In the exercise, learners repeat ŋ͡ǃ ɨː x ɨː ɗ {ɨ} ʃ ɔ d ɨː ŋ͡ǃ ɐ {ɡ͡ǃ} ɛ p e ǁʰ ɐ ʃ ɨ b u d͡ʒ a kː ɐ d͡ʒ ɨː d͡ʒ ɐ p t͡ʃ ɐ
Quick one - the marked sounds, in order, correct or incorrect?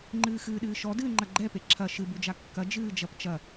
incorrect: ɨː, correct

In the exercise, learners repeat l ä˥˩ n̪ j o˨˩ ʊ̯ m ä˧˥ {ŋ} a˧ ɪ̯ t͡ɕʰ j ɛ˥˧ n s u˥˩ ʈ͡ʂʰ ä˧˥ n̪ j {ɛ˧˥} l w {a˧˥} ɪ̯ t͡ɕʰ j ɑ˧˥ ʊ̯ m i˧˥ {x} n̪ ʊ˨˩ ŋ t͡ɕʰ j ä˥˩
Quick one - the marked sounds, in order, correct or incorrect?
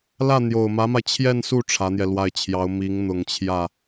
incorrect: m, incorrect: ɛ˧, incorrect: a˥˩, incorrect: ŋ

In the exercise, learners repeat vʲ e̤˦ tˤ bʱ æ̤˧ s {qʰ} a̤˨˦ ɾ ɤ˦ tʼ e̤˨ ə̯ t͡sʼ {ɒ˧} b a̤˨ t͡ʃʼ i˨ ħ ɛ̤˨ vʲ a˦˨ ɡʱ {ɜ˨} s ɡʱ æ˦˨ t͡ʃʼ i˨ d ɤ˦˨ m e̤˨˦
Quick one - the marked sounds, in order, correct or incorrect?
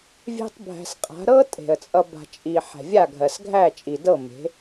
incorrect: qʼ, incorrect: ʌ˧, correct

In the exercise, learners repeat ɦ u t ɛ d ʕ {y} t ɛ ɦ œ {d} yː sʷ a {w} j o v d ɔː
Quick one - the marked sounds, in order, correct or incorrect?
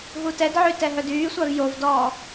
correct, correct, incorrect: v

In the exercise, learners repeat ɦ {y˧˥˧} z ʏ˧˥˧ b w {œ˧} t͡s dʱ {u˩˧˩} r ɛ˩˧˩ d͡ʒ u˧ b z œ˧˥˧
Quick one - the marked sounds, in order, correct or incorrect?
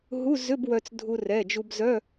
incorrect: u˧˥˧, correct, incorrect: u˧

